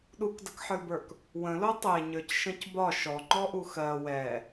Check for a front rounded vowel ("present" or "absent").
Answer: absent